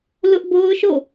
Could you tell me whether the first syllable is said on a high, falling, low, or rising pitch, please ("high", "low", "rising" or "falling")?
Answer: high